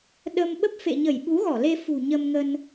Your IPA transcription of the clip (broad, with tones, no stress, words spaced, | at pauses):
ɗə˧m ɓə˦˥p̚fḛ˧˨ɲə˧˩j ɓu˨˦ɣɔ˧˩le˧ fṳ˨˩ɲə˧mŋə˧n